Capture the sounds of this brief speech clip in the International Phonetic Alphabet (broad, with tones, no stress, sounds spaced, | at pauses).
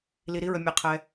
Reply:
l i˧ ɾ i˦ ɹ ə˧ mʲ ɛ˧ qʰ ɛ˧